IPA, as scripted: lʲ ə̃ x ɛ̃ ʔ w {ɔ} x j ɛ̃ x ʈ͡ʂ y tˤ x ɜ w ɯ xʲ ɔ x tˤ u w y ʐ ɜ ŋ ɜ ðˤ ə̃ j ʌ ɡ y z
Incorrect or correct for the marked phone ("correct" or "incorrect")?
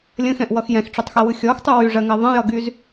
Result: incorrect